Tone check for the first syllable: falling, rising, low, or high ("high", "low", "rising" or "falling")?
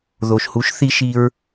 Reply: low